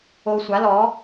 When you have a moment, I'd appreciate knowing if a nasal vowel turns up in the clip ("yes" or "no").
no